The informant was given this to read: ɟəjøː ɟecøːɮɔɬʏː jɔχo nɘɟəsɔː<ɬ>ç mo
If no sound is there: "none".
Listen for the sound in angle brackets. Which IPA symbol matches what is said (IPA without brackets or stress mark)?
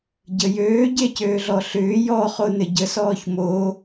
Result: none